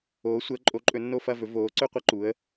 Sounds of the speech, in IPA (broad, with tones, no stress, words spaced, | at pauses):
oː˨˦sʷəː˨˦ǃʼo˨˦ǃʼɵ˨˦ nːo˥˧fɐ˥˧vɵ˨˦ voː˨˦ǀɵ˥˧qʷʌ˥˧ǃu˨˦ə̯